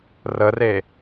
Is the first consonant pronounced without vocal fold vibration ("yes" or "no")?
no